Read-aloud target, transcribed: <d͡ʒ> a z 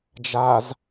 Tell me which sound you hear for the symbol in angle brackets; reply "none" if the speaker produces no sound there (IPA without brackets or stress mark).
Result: d͡ʒ